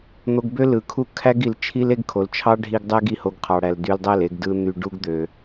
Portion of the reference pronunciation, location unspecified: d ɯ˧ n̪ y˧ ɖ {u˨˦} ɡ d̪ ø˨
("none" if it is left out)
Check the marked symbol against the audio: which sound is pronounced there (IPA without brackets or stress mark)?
u˦